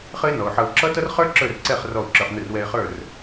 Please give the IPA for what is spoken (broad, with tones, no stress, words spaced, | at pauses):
χɘ˦ɪ̯nɔ˨ʊ̯ħʌ˧ʊ̯ ǁʌ˦tʌ˦rχə˞˦ ǁə˞˦˨rǀɛ˦˨χ rɔ˦˨ʊ̯ǁə˞˧χn̪ɘ˦˨r wɛ˧ɪ̯χə˞˦˨r